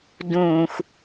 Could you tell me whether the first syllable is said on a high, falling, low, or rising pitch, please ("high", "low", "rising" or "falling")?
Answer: low